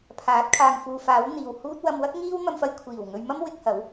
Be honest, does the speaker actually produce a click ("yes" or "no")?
no